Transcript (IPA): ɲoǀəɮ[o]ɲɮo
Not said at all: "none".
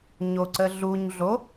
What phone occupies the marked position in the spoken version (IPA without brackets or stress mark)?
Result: u